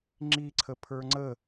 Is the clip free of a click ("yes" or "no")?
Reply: no